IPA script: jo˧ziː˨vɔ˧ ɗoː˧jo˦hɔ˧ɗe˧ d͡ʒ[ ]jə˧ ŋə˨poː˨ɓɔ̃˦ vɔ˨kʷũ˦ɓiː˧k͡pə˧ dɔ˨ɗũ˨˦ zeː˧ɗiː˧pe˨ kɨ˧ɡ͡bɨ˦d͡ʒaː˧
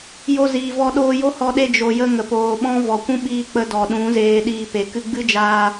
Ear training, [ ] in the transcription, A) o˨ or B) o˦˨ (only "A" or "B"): A